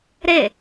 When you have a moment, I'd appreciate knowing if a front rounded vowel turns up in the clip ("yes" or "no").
no